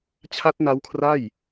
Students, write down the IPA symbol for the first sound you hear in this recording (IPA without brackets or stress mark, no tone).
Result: t͡ɕʰ